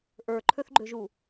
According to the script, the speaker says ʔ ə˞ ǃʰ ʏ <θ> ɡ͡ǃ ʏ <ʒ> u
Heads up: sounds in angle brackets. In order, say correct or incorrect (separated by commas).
correct, correct